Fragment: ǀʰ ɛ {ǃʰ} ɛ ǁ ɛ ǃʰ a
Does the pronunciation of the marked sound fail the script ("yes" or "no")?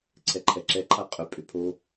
no